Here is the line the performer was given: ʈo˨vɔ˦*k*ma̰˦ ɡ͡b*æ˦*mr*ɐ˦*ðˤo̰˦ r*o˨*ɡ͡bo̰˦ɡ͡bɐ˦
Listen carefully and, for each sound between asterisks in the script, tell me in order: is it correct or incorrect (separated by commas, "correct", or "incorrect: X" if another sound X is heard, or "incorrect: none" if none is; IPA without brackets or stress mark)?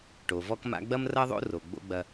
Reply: correct, incorrect: ɐ˦, correct, correct